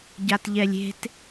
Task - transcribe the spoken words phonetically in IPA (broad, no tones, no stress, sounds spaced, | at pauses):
ɟ a t ʎ ɛ lʲ e̤ t